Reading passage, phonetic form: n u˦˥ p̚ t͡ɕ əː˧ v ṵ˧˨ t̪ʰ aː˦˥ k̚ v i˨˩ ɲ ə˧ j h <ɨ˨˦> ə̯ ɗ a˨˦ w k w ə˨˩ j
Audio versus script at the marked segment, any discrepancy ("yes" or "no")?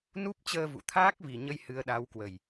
no